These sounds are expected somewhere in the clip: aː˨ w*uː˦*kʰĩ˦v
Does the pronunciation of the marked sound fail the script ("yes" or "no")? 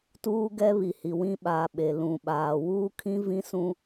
no